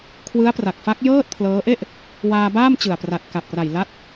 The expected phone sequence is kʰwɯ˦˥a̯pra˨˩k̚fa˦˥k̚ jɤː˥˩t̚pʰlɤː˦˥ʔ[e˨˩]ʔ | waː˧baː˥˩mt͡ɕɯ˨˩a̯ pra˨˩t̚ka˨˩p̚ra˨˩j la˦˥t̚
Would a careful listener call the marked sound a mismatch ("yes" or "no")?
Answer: yes